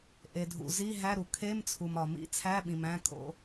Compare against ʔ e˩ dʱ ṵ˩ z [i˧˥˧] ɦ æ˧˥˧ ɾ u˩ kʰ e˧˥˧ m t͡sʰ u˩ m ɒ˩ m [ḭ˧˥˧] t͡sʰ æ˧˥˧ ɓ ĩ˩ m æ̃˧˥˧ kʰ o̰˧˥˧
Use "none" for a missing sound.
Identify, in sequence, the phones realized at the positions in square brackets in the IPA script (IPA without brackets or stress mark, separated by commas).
i˧˥˧, ḭ˧˥˧